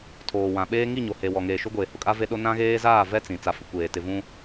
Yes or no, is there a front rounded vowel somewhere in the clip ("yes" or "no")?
no